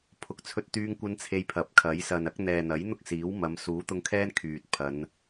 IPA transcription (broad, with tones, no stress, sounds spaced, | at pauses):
pʰ ʊ˨ k̚ t͡sʰ ɵ˧ t̚ t̪ yː˧ ŋ kʷ ɐ˧ n t͡sʰ e˧ j pʰ ɐ˨˥ p̚ kʰ ɐ˨˥ j s ɐ˨ n ɐ˨˥ k̚ n̪ ɛː˨ n̪ ɐ˨˥ j n̪ ʊ˥ k̚ s iː˨˥ w m ɐ˨˧ m s uː˨˥ t̪ ʊ˧ ŋ kʰ ɛː˥ n kʰ yː˨ t̚ pʰ ɐ˨˧ n